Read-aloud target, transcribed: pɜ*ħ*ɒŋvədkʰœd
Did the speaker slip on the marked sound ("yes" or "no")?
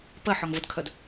no